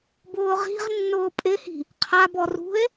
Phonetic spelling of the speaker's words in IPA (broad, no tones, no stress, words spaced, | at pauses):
bʊːʁi̤ʁnːʊː pʼɪhi̤ | qʰabɔ rṳe̯